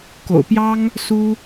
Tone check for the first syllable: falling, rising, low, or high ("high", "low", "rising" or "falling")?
low